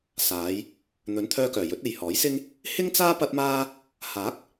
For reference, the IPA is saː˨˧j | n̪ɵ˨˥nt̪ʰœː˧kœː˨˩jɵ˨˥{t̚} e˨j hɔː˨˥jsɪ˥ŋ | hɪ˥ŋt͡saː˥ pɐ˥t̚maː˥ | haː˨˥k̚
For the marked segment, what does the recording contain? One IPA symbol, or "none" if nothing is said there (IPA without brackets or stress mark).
t̚